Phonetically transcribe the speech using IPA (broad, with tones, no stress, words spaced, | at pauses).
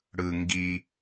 ɽɯ˧ŋɡi˧